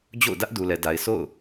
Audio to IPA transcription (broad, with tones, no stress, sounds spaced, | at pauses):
d͡ʑ o̰˦˨ ʊ̯ d ä˦ ʔ d u˨ l ɛ˨ d a˨ ɪ̯ s o̰˦˨ ʊ̯